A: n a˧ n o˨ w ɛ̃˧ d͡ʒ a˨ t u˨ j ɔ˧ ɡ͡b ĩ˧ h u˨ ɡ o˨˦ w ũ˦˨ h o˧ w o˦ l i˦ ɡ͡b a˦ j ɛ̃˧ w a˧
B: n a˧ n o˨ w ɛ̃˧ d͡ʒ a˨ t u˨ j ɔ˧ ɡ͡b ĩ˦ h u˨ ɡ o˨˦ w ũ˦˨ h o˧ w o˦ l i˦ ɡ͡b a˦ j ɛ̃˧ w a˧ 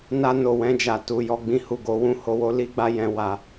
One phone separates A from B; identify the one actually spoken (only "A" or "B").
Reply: A